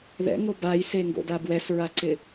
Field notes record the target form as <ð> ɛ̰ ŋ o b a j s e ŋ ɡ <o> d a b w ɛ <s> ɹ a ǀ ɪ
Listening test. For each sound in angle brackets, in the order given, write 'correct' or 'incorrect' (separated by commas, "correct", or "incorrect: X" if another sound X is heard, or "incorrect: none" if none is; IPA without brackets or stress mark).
correct, incorrect: o̰, correct